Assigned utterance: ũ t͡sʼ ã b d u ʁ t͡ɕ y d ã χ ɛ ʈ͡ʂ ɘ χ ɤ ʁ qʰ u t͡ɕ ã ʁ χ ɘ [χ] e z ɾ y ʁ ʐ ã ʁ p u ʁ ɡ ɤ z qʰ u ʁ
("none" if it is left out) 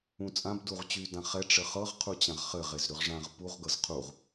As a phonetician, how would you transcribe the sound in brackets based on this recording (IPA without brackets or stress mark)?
ʁ